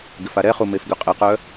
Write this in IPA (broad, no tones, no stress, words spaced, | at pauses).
ɡɪfaɾɛχu mefɡʏqʼɪqœ